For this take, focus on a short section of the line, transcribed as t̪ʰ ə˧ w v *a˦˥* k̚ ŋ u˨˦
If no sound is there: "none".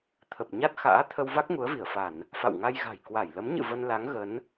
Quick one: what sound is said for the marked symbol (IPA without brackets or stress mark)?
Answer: a˦˥